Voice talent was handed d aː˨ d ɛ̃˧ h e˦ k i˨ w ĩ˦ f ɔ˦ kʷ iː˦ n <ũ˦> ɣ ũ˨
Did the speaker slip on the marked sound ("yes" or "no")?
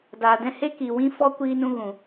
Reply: no